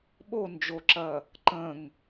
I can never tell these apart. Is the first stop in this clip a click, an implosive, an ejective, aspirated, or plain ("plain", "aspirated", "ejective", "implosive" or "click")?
implosive